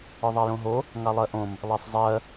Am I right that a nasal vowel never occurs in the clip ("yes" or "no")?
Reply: no